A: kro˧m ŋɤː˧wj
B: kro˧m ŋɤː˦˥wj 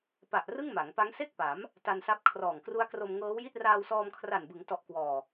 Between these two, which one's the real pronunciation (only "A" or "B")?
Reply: B